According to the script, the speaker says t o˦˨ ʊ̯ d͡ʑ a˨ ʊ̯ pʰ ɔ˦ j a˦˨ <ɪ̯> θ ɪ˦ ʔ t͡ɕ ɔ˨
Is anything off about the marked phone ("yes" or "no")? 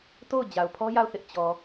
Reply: yes